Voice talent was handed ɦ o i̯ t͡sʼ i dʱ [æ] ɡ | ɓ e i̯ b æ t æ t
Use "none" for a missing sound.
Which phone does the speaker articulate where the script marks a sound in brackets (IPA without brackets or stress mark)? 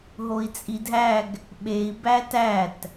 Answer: æ